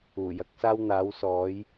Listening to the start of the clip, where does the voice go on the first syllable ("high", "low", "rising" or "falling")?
low